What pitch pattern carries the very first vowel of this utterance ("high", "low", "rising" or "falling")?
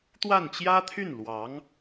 falling